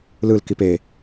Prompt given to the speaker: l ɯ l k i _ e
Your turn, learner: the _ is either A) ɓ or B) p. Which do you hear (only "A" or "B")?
B